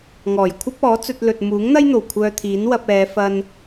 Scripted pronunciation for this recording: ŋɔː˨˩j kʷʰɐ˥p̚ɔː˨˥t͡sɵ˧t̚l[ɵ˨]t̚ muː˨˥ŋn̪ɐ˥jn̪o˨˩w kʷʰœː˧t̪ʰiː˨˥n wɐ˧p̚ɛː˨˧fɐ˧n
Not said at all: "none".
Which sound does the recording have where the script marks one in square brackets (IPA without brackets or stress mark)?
ɵ˨